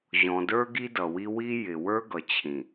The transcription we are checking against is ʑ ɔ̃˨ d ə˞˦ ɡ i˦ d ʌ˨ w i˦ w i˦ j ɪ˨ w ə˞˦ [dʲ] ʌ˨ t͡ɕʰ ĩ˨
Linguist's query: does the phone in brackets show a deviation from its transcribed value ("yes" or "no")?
yes